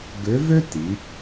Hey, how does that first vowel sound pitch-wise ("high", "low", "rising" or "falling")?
rising